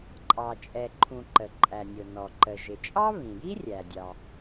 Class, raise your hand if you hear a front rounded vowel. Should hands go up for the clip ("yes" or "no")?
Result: no